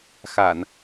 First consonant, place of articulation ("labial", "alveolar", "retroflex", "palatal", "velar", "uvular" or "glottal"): velar